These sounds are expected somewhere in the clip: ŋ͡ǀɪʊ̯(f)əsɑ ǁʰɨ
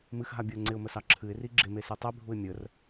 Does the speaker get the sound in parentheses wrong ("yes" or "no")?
yes